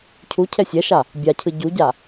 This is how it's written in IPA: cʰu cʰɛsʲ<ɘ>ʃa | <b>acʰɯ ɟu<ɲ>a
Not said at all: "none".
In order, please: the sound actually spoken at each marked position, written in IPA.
ɛ, bʲ, ɟ

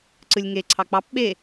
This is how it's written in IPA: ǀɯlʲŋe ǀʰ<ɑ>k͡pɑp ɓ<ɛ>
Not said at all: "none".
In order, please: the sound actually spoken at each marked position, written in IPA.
ɑ, e

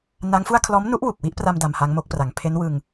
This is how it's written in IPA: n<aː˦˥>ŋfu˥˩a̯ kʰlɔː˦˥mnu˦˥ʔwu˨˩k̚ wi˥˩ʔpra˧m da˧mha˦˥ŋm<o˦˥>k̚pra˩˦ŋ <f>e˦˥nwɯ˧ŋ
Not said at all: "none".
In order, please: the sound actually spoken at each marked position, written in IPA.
a˦˥, o˦˥, pʰ

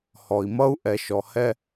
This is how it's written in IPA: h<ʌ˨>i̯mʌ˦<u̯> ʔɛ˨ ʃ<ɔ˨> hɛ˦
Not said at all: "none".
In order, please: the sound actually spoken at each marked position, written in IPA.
ɔ˨, u̯, ɔ˨

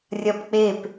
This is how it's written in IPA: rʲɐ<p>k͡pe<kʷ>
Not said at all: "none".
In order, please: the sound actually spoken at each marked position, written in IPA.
p, p

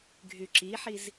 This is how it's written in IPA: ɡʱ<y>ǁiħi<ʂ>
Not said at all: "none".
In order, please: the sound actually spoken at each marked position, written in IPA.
y, z

